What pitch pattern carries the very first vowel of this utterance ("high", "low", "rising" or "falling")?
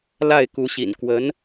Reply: falling